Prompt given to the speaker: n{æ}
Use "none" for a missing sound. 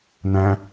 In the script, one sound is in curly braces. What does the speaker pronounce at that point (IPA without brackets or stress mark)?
æ̃